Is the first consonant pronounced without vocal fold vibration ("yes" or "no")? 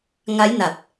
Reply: no